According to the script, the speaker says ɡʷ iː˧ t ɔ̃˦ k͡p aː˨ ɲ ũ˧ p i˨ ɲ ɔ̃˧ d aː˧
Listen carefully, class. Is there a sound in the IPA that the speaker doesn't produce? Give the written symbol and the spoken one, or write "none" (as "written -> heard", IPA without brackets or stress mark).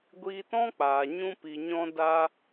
none